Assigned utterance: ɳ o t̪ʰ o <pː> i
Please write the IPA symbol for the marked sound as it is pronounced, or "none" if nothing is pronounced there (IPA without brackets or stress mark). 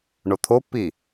pː